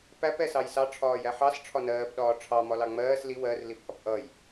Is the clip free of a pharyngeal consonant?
no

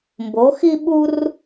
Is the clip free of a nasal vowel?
yes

